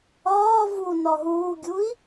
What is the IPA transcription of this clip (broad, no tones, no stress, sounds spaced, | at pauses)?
ɒː v u n ɒ ɦ uː ɡʲ u i̯